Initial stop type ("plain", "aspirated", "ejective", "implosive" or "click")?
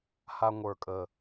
ejective